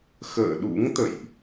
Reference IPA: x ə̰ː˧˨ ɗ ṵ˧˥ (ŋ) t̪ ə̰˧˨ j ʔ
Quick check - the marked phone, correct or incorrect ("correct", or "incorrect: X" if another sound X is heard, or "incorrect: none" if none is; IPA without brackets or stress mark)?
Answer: correct